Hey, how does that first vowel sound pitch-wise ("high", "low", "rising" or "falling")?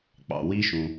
low